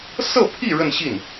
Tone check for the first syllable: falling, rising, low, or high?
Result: falling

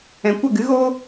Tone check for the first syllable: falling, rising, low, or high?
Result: low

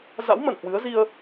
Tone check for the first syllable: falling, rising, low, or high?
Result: rising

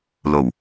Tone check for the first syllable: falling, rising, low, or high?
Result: low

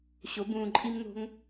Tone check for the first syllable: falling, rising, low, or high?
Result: rising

